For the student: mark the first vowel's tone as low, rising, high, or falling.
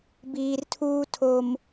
low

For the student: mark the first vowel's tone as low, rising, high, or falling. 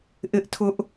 high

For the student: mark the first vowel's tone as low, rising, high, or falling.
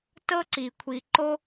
high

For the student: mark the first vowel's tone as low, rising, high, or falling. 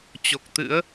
low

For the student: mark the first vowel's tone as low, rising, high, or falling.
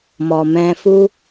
low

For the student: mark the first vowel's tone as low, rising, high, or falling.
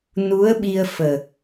rising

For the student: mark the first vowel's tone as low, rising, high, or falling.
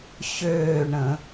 falling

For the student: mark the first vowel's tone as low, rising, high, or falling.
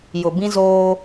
low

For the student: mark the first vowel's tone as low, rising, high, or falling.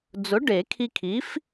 rising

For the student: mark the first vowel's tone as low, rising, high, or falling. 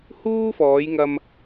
high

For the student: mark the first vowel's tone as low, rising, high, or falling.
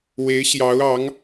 rising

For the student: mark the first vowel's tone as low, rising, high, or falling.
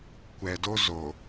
low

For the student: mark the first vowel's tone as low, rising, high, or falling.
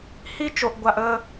high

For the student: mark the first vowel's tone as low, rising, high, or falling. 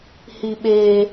high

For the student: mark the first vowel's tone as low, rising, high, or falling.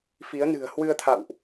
rising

